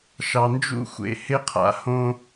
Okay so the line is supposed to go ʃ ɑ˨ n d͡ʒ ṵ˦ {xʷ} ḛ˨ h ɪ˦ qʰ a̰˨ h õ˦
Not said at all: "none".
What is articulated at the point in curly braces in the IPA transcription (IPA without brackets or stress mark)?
xʷ